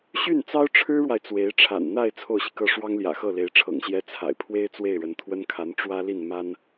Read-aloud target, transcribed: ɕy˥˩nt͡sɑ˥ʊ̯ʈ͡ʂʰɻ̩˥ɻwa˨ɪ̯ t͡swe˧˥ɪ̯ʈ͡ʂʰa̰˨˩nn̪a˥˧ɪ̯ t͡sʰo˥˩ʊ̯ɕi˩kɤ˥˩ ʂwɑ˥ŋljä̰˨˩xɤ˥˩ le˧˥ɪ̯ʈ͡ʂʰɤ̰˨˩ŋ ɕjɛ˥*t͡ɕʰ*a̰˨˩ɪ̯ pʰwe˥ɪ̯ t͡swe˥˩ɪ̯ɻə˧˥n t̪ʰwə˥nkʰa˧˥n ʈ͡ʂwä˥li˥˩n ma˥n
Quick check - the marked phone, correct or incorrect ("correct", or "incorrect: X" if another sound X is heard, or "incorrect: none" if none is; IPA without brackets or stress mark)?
incorrect: t͡sʰ